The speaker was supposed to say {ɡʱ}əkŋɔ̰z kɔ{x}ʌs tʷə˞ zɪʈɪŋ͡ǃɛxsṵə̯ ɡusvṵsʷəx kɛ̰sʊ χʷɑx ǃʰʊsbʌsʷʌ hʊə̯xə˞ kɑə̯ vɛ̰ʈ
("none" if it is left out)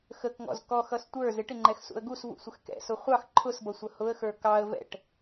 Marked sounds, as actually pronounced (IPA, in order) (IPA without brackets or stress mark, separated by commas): x, x